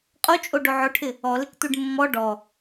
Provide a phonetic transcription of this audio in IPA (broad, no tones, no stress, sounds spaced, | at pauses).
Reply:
qʼ o t͡ʃʼ o ɖ o ʕ ʊ ʈʰ ɪ | ɔ l ɪ k t̪ u ɖ mː ɔ ɖ ɔ